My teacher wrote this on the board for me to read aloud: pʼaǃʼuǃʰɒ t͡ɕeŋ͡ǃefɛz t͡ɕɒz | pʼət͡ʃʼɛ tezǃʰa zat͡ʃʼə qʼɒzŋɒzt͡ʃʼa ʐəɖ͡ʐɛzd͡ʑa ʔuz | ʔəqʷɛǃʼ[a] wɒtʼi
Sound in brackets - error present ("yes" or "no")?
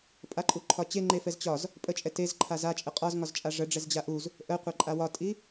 no